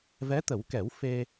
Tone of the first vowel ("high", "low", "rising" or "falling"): rising